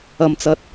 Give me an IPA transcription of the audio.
ɐ˧ m t͡s ɐ˧ t̚

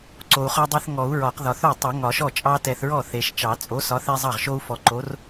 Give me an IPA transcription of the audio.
ǀ o˨ u̯ χ ɒ˦ dˤ e˦ θ ŋ ɔ˨˩˦ u̯ ɹ ɒ˨˩˦ q ð ɒ˨ θ o˥˩ tˤ e˨˩˦ ŋ ɒ˨˩˦ ʃ ɔ˥˩ t͡ʃʼ ɑ˦ t ɛ˨ θ ɹ ɔ˥˩ θ e˨ ʃ t͡ʃ ɑ˨˩˦ t͡sʼ o˨˥ s ɒ˨˥ θ ɛ˦ zˤ ɑ˥˩ ʁ ʃ o˦ u̯ f ɔ˨ ǃ o˨˥ r

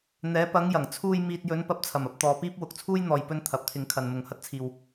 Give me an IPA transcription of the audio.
n̪ ɛː˨˧ p ɐ˨˧ ŋ j ɐ˨˩ ŋ t͡sʰ uː˧ j m iː˨ t̚ j ɵ˨˧ n p ɐ˧ p̚ t͡sʰ ɐ˨˩ m ɐ˧ p̚ t̪ ɔː˨ p iː˥ p̚ w ʊ˨ k̚ t͡sʰ uː˥ j n̪ ɔː˨ j p ɵ˧ n t̪ʰ ɐ˨˥ p̚ t̪ʰ ɪ˨˧ ŋ kʰ ɐ˨ n m ʊ˨ ŋ h ɐ˥ t̚ t͡sʰ iː˧ w

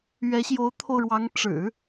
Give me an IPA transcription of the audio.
ɥ ɛ˧˥ ɕ j o˧˥ ʊ̯ t̪ʰ o˧ ʊ̯ ɻ w ɑ˧˥ ŋ ʈ͡ʂ ɻ̩˨˩˦

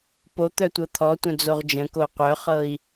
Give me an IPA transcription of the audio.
p o t̪ œ tʷ ɤ t̪ʰ ɔ tʷ œ̃ d͡z o ʁ d͡ʒ ə̃ k o qʷ œ χ ɤ i̯

